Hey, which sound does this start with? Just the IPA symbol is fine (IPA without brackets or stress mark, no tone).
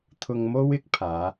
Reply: t̪ʰ